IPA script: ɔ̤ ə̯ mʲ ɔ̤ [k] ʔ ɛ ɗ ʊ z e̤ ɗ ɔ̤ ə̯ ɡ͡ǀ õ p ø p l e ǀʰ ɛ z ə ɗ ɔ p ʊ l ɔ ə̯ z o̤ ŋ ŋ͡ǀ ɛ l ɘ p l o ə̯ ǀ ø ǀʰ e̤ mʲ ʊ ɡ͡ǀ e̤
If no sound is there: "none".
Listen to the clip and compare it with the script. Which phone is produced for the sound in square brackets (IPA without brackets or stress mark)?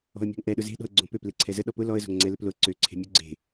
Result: ŋ